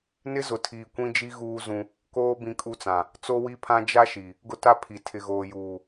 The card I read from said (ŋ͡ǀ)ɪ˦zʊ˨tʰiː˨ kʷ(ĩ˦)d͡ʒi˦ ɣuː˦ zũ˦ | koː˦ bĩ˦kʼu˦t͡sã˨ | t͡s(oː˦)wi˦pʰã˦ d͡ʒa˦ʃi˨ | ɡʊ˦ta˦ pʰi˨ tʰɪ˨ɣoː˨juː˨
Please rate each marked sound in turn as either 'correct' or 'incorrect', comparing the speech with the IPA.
incorrect: n, correct, incorrect: o˦

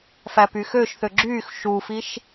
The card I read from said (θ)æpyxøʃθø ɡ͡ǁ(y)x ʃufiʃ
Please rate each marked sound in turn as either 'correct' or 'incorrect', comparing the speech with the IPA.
incorrect: f, correct

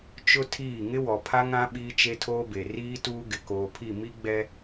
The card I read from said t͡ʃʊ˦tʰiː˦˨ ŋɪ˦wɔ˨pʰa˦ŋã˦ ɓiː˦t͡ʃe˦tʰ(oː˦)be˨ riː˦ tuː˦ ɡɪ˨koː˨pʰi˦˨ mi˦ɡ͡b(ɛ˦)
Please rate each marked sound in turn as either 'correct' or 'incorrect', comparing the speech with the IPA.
correct, correct

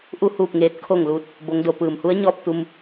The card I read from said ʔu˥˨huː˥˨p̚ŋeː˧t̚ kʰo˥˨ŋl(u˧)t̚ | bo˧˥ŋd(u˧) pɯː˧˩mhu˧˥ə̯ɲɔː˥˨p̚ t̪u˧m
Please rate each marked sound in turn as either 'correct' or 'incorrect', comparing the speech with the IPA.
incorrect: uː˧, incorrect: o˧

